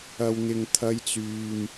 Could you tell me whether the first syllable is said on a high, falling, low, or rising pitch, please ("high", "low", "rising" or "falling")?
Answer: low